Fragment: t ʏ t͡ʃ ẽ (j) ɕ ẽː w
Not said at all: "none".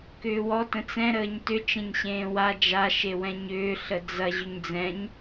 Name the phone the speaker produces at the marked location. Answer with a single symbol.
ɲ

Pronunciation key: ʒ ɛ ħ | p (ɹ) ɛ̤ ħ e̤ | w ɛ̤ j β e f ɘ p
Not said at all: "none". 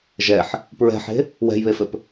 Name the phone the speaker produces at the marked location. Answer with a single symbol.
ɹ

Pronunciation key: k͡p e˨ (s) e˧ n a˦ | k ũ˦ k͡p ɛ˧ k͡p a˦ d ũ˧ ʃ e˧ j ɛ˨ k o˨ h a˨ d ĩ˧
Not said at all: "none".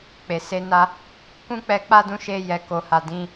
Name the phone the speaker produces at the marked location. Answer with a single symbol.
s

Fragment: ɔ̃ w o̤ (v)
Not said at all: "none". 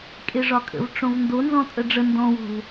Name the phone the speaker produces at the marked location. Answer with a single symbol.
v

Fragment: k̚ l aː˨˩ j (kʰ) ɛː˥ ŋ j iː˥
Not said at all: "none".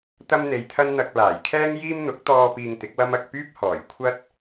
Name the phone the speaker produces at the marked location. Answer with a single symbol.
kʰ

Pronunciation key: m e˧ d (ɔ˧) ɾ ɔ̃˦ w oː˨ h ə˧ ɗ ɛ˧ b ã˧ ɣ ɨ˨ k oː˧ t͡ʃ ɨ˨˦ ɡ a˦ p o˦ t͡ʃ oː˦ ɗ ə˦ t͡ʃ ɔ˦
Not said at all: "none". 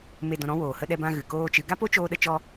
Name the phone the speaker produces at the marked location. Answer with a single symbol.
ɔ̃˧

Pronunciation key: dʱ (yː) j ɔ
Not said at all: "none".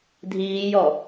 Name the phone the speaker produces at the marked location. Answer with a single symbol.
iː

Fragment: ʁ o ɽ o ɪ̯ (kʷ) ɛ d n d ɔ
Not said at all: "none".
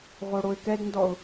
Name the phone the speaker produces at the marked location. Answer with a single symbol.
k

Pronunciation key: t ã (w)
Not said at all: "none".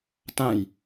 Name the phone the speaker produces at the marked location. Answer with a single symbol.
j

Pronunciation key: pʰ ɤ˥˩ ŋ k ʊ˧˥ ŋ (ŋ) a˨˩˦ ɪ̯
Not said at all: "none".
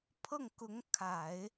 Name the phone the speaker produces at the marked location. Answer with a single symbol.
kʰ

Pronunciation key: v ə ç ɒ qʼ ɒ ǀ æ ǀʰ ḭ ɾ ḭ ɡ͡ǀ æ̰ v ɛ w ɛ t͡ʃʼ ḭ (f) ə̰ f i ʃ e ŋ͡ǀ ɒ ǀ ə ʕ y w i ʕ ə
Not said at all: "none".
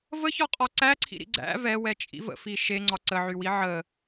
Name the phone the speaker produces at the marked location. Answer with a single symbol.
v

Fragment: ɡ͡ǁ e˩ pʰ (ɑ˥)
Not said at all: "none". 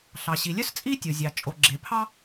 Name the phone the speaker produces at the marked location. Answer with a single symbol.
ɑ˥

